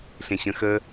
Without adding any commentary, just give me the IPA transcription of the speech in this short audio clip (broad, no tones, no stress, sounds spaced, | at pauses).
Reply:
ɬ ẽ ɕ ə̃ x ə